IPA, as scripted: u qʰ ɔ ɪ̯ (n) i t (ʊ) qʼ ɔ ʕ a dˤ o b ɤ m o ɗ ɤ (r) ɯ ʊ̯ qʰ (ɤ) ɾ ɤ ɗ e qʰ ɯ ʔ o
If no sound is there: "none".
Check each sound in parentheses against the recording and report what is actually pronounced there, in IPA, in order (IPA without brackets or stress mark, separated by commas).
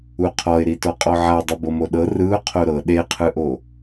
ɾ, ɔ, r, o